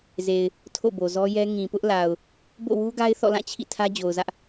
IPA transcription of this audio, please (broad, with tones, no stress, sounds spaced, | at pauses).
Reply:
z e˨ ɪ̯ | tʰ o̰˦˨ b o˨ z ɔ˦ j ɛ˦ ŋ ĩ˨ p ʊ˦ ʔ l a˨ ʊ̯ | b o̰˦˨ w u˦ ɡ a˦ ɪ̯ θ ɔ̰˦˨ l ã˦˨ t͡ɕʰ ḭ˦˨ tʰ ä˦ d͡ʑ o˨ ʊ̯ z ä˦ ʔ